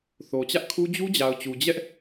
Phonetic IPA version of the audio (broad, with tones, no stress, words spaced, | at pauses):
θo˨t͡ɕä˦ʔkʰu˦ d͡ʑu˦d͡ʑa˨ʊ̯t͡ɕu˨ d͡ʑɛ˦ʔ